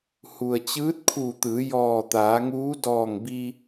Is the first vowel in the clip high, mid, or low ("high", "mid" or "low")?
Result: high